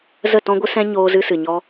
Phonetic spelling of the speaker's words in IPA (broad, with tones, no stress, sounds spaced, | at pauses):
z ə˦˨ t ɔ̃˦ ɡʷ ɨ˦ s ɛ̃˦ ɲ oː˧ z ɨ˧ s ɨ˨ ɲ ɔ˧